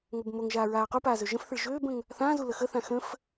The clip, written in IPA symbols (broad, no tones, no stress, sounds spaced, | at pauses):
ŋ o b m o ŋ ʒ aː ɹ aː q u p aː z ø ʒ ə̃ f θ ɪ ɭ ʒ øː b ə̃ ŋ | θ ã z u l ə x ə θ ã x ə̃ f